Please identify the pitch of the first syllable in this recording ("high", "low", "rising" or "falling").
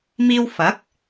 high